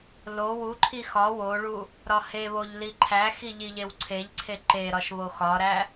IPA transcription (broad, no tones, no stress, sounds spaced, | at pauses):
l o w u ǃʰ i x ɒ w o ɭ u | ɾ ɒ h e β o ʎ l i ǃʰ æ x i ʎ i ʎ e w ǀʰ e ʎ ǀʰ e ǃ e ɾ ɒ ʃ β o x ɒ ɾ æ